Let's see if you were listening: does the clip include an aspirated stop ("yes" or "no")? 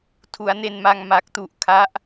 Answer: yes